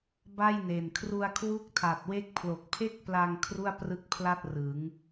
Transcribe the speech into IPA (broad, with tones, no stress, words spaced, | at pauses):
ba˥˩jne˨˩n kʰru˧a̯kʰwu˦˥k̚tʰa˨˩t̚we˦˥k̚ pʰlo˨˩k̚pʰe˥˩k̚pla˧ŋ kʰru˥˩a̯prɯ˦˥k̚pʰla˥˩t̚ rɯ˩˦ŋ